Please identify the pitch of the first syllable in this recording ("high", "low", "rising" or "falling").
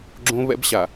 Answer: high